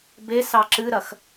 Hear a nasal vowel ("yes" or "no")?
no